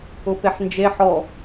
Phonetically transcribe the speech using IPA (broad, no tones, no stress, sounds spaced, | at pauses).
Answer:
ʊ p e ħ n d͡ʒ e ħ ɔ